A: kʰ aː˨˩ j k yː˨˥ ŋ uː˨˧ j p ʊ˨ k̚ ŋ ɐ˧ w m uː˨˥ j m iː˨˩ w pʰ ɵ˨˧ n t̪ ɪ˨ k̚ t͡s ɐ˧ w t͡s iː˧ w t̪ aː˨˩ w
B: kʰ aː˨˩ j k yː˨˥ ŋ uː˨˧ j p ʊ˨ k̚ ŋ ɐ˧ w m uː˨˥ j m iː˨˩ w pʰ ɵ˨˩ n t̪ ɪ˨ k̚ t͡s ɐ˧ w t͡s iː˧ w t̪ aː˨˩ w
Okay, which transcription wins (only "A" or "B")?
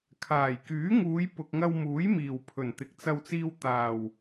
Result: B